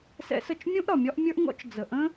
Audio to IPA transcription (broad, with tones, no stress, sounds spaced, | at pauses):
s ɛ̰˦ s ə˦˨ t͡ʃ mʲ ũ˦ ʔ ɾ ɒ˨ mʲ ɒ˦ ʔ mʲ ə˞˦ ʔ ŋ ɔ̰˦ t͡ʃ d͡z ə˨ ʔ ə̃˦